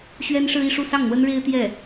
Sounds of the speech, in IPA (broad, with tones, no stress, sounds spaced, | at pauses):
ɕ ɥ ɛ˥ n ʂ ɻ̩˥ i˥˧ ʂ u˥˧ s ɑ˥˩ ŋ n̪ w ə˥ n ɻ e˥ ɪ̯ t̪ j ɛ˥˩